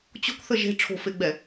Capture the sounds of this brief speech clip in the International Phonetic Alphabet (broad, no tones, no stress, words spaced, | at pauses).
t͡ɕo̤kθə ʒe̤ ʈ͡ʂʰo̤feɡ͡bɛ